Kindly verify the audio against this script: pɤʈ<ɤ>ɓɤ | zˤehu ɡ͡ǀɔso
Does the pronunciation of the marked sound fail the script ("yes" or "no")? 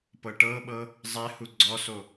no